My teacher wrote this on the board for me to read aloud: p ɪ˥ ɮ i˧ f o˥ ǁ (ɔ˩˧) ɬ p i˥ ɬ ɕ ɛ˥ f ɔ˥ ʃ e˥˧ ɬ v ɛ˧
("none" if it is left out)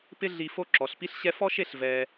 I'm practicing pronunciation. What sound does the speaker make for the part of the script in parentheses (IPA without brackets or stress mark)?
ɔ˩˧